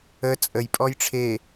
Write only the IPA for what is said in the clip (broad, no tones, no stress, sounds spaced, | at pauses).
ə t͡sʼ ə j pʼ ɔ j ʈ͡ʂʰ e